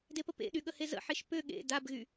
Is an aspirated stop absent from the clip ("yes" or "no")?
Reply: yes